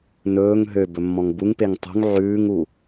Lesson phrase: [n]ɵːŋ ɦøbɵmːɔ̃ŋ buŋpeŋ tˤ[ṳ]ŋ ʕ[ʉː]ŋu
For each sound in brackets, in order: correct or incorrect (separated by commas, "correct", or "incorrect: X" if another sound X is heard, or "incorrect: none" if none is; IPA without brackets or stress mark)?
correct, correct, correct